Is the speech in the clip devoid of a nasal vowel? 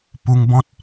no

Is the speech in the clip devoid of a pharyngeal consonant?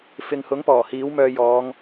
yes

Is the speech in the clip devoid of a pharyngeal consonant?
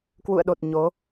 yes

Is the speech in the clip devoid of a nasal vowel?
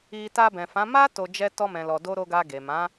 no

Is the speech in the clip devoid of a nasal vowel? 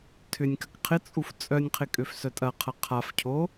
yes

